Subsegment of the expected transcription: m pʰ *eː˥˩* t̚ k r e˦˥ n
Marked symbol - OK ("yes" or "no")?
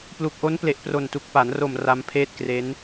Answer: yes